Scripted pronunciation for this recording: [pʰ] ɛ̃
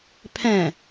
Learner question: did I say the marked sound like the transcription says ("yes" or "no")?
yes